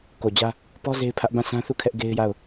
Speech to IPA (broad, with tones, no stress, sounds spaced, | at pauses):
k o˨ d͡ʑ ä˦ | p ɔ˦ z e˦ ɪ̯ pʰ ä˦ ʔ b ã˦˨ sʰ ã˦ θ u˦˨ kʰ ɛ˦ ʔ ɡ e˦ ɪ̯ j a˦˨ ʊ̯